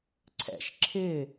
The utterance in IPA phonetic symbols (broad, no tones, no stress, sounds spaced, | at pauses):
ǀʰ ɛ̰ ʃ ǁʰ ɪ